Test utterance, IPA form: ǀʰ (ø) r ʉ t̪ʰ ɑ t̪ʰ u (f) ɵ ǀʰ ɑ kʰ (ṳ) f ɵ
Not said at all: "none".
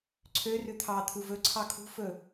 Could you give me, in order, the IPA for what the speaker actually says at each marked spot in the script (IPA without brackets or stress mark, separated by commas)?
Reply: ø, v, ṳ